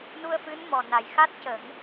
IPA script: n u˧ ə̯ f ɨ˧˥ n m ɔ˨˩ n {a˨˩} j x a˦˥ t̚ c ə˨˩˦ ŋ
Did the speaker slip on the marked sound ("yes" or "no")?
no